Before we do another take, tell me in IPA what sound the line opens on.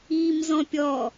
iː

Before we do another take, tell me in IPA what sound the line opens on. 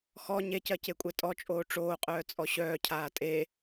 x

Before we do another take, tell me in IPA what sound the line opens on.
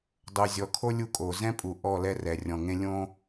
dˤ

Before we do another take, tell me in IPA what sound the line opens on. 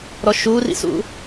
ɾ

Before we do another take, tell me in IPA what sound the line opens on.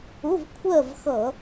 ʊ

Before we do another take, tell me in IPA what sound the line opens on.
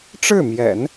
ʈ͡ʂ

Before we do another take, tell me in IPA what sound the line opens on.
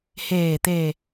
h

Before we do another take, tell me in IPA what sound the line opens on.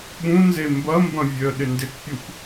ɓ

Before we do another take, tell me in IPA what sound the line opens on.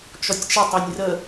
t͡ʃ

